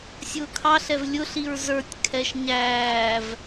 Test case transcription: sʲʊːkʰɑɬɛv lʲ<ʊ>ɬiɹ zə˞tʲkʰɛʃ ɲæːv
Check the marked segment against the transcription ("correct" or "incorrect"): correct